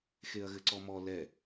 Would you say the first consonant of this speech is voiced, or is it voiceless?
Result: voiceless